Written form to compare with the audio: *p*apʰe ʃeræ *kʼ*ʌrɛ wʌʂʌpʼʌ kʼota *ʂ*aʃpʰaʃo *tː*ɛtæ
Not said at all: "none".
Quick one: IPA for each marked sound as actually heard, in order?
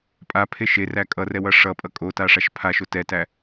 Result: pʼ, kʼ, ʂ, t

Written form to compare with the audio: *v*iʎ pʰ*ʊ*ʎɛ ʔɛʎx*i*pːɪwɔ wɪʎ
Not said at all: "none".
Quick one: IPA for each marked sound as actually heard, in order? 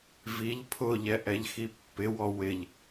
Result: v, ʊ, i

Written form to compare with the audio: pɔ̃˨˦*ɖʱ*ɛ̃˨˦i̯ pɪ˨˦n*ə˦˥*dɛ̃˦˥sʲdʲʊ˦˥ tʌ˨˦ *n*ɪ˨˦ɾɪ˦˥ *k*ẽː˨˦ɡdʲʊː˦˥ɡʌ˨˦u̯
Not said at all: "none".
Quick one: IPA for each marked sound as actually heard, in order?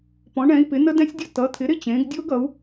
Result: ɳ, ə˦˥, t̪ʰ, t͡ɕ

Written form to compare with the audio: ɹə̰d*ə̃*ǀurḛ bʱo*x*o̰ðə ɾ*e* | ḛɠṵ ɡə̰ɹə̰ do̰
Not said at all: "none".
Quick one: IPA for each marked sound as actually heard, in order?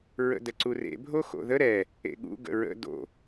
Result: ə, x, ɛ

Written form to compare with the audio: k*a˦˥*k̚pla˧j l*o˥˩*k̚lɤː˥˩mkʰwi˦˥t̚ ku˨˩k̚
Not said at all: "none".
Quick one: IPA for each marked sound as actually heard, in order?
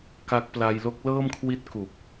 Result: a˦˥, o˦˥

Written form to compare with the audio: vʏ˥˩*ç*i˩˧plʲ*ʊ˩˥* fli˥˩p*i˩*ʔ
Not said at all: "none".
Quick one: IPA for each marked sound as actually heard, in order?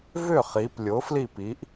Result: χ, ʊ˩˥, i˩˥

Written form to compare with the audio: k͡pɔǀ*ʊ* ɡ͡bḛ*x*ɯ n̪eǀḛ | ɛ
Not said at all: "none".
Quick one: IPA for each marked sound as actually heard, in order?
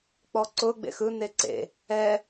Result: ʊ, x

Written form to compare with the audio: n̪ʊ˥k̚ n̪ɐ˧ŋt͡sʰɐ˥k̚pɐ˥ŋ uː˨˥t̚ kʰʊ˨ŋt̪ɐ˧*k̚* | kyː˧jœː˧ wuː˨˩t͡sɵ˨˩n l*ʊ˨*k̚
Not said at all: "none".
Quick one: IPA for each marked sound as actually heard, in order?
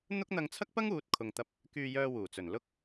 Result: p̚, ʊ˧

